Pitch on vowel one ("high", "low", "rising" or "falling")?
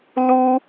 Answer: high